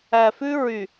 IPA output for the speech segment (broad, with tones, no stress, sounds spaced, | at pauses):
æ˨ f ʉ˦ ɹ y˨